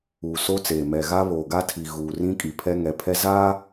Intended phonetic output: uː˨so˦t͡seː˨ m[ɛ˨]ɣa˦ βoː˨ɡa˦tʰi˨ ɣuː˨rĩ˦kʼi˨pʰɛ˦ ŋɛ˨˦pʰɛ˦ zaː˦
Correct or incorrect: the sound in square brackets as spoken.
correct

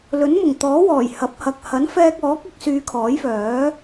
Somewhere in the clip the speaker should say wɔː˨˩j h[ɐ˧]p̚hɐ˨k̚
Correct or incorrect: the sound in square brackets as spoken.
incorrect: ɐ˨˥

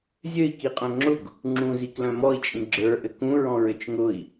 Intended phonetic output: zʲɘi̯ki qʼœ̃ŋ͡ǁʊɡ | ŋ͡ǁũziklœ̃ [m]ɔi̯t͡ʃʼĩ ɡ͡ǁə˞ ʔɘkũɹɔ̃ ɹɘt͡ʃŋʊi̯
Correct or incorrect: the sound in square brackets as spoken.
correct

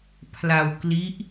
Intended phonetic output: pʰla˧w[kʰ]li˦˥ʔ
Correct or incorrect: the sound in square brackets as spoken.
incorrect: k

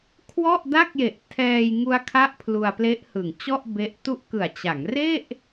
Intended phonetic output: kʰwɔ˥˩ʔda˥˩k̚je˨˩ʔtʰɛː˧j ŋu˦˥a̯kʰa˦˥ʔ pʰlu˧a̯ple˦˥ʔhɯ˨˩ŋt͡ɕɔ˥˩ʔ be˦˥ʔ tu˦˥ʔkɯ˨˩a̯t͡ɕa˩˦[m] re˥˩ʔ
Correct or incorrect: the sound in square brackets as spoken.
incorrect: ŋ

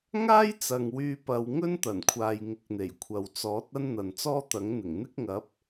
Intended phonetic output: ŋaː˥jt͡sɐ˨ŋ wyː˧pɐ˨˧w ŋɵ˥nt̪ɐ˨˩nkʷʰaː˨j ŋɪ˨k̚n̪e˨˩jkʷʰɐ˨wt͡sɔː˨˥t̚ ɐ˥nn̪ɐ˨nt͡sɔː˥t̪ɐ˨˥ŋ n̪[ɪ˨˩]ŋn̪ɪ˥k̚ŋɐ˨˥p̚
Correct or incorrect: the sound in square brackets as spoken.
correct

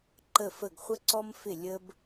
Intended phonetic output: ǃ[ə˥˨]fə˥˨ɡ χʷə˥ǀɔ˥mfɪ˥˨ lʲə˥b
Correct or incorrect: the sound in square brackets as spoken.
correct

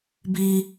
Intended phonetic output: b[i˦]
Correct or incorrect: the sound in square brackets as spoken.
incorrect: iː˦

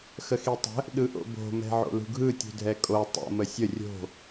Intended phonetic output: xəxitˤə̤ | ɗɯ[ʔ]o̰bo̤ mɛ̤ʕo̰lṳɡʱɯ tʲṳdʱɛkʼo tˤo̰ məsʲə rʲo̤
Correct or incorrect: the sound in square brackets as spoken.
correct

